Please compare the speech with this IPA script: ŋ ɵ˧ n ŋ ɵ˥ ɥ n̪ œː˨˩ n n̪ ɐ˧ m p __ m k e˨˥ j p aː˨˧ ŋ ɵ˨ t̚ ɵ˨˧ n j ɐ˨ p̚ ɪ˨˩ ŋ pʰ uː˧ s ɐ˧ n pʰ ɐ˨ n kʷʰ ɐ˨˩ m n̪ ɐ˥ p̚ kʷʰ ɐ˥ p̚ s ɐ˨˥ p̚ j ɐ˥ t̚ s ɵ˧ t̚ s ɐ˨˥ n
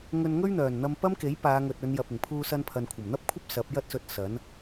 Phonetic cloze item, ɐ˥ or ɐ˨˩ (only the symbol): ɐ˥